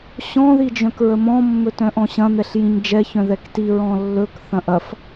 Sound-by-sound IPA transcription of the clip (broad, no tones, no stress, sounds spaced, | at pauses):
ɕ ɔ̃ ð i d͡ʒ œ̃ k ɹ ə m ɔ̃ mː ɵ t œ̃ ʔ ɔ̃ ɕ ɐ̃ n̪ ɛ ɬ j ĩ ɲ d͡ʒ ɛ ç œ̃ ð ɛ k t i ɹ ɔ̃ lː ɵ k θ ɐ̃ ʔ ɐ f